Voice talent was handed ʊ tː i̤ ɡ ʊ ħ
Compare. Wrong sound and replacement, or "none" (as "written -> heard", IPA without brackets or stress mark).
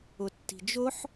ɡ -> d͡ʒ